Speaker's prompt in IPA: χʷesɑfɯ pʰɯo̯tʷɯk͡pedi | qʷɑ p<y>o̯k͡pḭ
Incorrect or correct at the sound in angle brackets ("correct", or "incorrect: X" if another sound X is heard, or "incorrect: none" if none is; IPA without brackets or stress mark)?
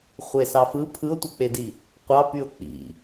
correct